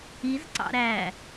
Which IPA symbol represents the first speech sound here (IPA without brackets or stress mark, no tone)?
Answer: i